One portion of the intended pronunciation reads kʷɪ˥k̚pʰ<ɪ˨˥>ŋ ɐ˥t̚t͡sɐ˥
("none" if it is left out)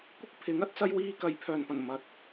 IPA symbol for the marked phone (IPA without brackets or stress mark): ɪ˨˥